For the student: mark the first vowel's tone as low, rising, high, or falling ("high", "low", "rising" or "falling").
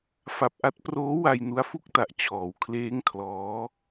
low